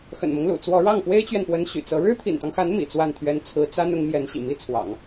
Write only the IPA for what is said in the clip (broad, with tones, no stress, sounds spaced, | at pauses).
x ə̰˨˩ n m ɤ˦ ŋ l ṵ˨˩ t͡s w ɔ˧˥ ɻ ɑ˥˩ ŋ p w e˥ ɪ̯ t͡ɕ ɥ ɛ˨ n p w ə˧˥ n ɕ y̰˨˩ t͡s ɤ˧˥ ɻ ɻ̩˥ t̪ʰ ḭ˨˩ n t̪ ɑ˦ ŋ x a˧˥ n m ḭ˨˩ t͡s w a˥˩ n t̪ʰ ɥ ɛ˥ n t͡sʰ ɹ̩˧˥ t͡s a˥ n ʊ˧˥ ŋ m j ɛ˧˥ n ɕ ḭ˨˩ m i˥ t͡sʰ w ɑ̰˨˩˦ ŋ